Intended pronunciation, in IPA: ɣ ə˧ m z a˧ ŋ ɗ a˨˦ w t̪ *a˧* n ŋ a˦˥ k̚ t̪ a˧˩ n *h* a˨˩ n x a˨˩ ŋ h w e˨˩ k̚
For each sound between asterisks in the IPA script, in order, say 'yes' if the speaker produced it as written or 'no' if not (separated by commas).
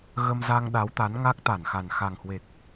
no, no